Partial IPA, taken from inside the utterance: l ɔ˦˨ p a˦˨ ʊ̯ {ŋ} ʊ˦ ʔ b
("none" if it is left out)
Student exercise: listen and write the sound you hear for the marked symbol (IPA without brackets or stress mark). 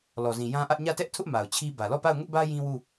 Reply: ŋ